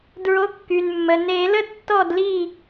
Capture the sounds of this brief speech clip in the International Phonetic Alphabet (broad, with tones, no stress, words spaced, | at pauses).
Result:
dɹo˨˦kːy˩nmːə˩ ne˨˩˦lə˦ tːɔ˥˨d li˥˨